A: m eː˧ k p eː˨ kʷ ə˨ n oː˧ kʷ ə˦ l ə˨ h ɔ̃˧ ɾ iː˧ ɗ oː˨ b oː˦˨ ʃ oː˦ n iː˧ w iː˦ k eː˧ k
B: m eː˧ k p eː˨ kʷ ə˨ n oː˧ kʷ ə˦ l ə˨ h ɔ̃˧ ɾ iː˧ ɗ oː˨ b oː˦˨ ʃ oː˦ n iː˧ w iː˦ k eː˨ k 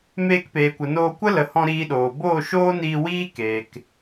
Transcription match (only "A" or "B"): B